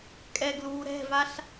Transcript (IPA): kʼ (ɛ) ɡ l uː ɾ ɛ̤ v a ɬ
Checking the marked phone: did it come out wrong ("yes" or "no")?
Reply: no